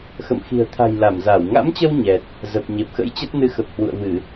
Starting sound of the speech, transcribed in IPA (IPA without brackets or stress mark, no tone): x